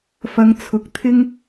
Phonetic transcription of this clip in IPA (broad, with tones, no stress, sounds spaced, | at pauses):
f ɐ˨˧ ŋ t͡sʰ ʊ˨˥ k̚ t̪ʰ ɪ˥ ŋ